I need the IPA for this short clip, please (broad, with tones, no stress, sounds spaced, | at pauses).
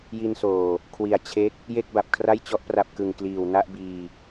j i˧ n s oː˨˩ | kʰ w i˨˩ a̯ t͡ɕʰ e˦˥ k̚ | j e˥˩ k̚ b a˨˩ p̚ kʰ r a˥˩ j t͡ɕ ɔ˦˥ ʔ p r a˨˩ p̚ k ɯ˨˩ ŋ k l iː˨˩ w n a˥˩ ʔ b iː˧